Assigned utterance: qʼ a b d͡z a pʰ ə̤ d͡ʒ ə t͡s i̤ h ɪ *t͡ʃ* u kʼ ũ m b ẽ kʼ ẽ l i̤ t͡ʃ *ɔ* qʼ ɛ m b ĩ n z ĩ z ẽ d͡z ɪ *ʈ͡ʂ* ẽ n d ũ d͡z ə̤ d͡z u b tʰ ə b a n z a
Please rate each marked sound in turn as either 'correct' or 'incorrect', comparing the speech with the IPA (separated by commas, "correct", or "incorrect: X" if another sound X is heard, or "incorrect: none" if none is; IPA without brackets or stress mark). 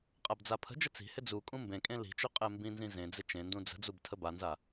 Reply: incorrect: d͡z, incorrect: ɵ, incorrect: t͡ʃ